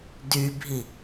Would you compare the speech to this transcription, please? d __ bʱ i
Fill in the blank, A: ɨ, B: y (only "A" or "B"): B